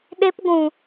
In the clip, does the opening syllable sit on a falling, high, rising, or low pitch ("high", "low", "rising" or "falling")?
high